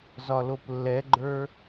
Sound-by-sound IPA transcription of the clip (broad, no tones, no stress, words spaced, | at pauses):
zɒloplːɛɡ͡ǃə˞